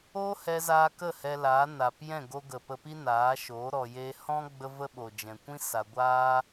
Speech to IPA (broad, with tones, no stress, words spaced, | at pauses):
oː˦hɛ˧zaː˧ kə˦˨ hɛ˧laː˨˦ na˨p jɛ̃˦˨ɡo˧ɡə˨ pə˧pi˦naː˨˦ʃoː˨˦ ɾɔ˨jeː˧ hɔ̃˦ ɡ͡bə˦və˦ ɓo˨d͡ʒɛ̃˨kʷĩ˦ sa˧ ɡʷaː˦